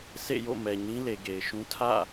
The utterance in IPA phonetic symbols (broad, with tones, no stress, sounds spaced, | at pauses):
s ḛ˦˨ j o̰˦˨ m ɛ˨ ɲ ĩ˦ l e˨ ɡ e˨ ɪ̯ ʃ ũ˦ tʰ ä̰˦˨